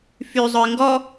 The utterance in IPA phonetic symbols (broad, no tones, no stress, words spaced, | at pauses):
fy zˤœɪ̯ŋɡɔ